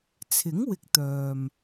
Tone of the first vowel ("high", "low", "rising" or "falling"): rising